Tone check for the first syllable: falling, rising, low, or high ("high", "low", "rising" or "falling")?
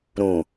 low